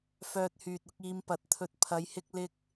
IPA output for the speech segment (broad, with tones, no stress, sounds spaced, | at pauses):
f œː˧ t̚ h yː˨ t̚ ʊ˨˥ k̚ iː˧ m p ɐ˨˥ t̚ t̪ʰ ɵ˧ t̚ pʰ ɐ˨˧ j h ɪ˧ k̚ l ɪ˧ k̚